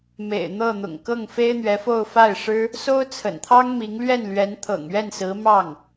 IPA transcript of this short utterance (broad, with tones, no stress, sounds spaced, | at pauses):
m ḛ˨˩ ɪ̯ n̪ ɤ˥˩ n̪ ʊ̰˨˩ ŋ k ɤ˥˩ ŋ f e˥ ɪ̯ n̪ ɥ ɛ˧˥ f o˥˧ ʊ̯ f a˥˩ ɪ̯ ʂ ɻ̩˥ | s o˥ ʊ̯ t͡sʰ ə̰˨˩ n t̪ʰ ɑ˥ ŋ m i˧˥ ŋ l ɥ ɛ˥˩ n l ɥ ɛ˧˥ n t̪ʰ ɤ̰˨˩ ŋ ɥ ɛ˥˩ n s ɹ̩˧˥ m ɑ˥˩ ŋ